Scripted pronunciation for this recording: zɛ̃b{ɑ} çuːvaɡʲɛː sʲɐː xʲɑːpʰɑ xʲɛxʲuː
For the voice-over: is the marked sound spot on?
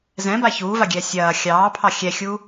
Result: no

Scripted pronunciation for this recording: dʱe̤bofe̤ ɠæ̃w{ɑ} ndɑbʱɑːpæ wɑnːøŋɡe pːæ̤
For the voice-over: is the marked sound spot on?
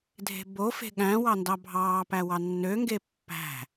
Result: yes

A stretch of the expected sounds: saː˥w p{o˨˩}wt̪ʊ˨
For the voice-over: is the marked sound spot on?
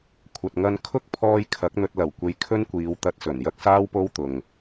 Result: no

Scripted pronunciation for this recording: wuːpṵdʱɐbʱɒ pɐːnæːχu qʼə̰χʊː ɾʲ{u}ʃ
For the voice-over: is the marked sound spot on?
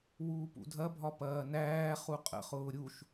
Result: yes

